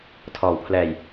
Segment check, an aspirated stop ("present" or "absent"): present